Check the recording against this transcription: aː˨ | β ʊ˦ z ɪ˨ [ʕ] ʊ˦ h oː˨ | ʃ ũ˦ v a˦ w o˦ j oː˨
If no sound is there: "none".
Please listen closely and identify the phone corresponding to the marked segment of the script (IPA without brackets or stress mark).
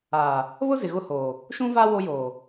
ɣ